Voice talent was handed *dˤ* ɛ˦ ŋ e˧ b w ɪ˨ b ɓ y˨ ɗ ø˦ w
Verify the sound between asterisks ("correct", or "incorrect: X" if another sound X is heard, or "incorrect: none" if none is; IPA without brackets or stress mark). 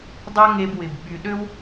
correct